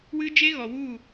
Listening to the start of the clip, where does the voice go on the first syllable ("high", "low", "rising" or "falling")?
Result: high